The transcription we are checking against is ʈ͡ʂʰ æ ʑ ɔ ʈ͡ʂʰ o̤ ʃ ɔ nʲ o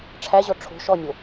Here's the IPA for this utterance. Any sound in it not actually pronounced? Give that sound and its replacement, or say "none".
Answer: none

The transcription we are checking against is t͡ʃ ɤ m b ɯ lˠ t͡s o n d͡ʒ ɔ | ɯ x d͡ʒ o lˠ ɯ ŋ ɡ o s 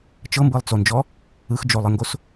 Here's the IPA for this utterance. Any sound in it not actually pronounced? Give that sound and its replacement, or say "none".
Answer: none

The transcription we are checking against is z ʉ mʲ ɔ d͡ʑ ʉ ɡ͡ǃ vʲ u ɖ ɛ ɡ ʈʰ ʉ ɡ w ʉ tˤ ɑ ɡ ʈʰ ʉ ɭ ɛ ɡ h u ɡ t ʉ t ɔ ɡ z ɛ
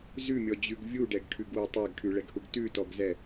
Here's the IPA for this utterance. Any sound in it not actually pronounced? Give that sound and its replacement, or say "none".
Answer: ɡ͡ǃ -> ɡ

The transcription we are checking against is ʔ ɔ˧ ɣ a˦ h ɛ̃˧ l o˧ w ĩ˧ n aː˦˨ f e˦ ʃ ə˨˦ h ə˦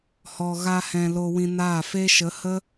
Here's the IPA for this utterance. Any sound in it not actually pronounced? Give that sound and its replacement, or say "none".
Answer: ʔ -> h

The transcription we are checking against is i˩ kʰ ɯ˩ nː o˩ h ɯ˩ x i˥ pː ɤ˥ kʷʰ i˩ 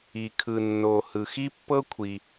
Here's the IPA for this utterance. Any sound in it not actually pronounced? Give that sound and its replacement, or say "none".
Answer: none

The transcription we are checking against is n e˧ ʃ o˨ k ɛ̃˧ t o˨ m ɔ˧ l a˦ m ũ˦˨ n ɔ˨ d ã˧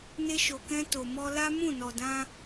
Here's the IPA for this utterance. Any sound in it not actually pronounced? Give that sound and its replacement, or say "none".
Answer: none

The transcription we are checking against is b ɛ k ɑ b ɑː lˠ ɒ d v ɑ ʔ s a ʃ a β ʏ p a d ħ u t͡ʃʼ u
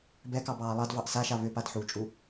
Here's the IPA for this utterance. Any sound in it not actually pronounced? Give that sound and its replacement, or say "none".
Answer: ɒ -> ɑ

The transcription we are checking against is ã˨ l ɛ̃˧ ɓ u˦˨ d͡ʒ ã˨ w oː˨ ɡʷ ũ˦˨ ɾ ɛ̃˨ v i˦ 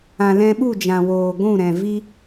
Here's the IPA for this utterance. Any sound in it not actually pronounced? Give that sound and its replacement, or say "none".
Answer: none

